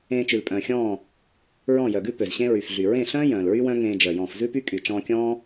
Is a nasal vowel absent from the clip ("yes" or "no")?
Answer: no